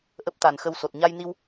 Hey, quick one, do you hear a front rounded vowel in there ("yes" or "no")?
no